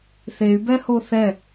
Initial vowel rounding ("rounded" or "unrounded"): unrounded